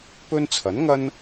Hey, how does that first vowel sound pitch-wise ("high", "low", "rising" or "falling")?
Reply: high